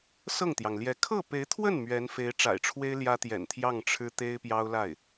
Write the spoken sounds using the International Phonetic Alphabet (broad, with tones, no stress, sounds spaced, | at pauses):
s ɤ˥˩ ŋ t̪ j ɑ˩ ŋ l j ɛ˧˥ kʰ ɤ˥˩ p e˧˥ ɪ̯ t̪ʰ w ə˥˩ n m ɥ ɛ˧˥ n f e˧˥ ɪ̯ ʈ͡ʂ a̰˨˩ ɪ̯ ʈ͡ʂʰ w e˥ ɪ̯ l j ä˥ t̪ j ɛ̰˨˩ n t̪ʰ j ɑ˥˩ ŋ ʈ͡ʂʰ ɻ̩˥ t̪ e˥ ɪ̯ p j ɑ˥ ʊ̯ l a˥˩ ɪ̯